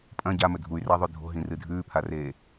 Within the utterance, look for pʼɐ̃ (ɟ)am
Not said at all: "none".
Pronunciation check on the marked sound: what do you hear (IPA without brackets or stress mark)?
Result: ɟ